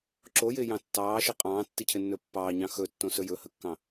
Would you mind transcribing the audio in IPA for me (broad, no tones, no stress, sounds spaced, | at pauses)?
ǁ o j ɪː j ɑ̃ tː ɑː ʃ i qʼ ɑ̃ː tː i cʰ ɪ nː ɵ pː ɑː ɲ ɑ̃ x ɵ tː õ s ɵ j ɵ h ə kː ɑ̃